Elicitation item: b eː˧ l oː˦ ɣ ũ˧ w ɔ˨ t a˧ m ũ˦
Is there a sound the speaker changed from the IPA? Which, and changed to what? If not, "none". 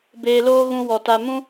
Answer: none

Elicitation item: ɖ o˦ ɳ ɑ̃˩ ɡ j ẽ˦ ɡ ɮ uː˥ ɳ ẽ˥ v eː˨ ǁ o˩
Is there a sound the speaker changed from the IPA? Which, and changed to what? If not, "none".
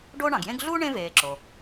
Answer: none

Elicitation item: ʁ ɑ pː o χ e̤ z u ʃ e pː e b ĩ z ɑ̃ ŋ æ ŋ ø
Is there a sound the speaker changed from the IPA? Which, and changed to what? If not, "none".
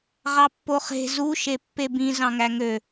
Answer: none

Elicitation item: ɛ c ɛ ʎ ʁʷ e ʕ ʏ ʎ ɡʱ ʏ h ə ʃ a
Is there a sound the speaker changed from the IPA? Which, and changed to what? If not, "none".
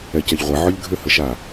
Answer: none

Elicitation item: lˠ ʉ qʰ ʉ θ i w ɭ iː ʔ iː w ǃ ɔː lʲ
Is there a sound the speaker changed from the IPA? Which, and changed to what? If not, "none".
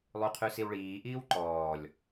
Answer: θ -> s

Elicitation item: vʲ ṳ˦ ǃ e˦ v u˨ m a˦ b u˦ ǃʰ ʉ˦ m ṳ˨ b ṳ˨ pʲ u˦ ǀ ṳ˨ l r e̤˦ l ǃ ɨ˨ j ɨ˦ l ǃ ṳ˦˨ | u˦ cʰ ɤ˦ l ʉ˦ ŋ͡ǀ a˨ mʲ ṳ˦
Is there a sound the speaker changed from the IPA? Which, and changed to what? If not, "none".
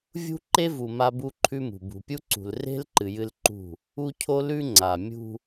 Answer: ɤ˦ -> o˦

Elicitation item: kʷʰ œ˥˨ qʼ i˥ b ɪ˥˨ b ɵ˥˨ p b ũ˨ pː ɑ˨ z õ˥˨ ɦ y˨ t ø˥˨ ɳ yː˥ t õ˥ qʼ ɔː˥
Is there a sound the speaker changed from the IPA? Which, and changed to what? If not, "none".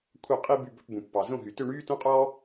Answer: ɪ˥˨ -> y˥˨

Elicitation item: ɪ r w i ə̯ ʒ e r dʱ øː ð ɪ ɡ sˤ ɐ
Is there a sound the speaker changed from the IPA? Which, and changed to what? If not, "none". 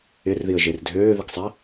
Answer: w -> ð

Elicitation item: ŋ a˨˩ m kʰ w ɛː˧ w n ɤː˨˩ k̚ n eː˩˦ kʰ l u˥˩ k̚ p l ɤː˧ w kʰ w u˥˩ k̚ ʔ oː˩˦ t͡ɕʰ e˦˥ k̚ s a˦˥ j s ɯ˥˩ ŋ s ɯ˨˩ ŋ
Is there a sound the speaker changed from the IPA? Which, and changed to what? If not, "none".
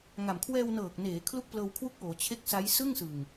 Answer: e˦˥ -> e˥˩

